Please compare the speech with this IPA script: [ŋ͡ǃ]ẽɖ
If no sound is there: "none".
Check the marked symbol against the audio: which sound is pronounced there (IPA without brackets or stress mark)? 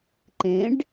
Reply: ǃ